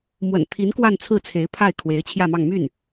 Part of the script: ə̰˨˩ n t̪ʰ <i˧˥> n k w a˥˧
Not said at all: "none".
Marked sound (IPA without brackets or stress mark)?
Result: i˧˥